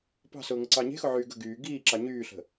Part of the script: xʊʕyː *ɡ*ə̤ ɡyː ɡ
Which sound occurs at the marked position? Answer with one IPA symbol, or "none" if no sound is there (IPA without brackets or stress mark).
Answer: ɡ